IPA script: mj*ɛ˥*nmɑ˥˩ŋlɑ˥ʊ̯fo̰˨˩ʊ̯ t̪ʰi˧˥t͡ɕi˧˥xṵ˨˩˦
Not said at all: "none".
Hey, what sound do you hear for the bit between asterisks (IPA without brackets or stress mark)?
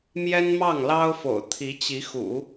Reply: ɛ˥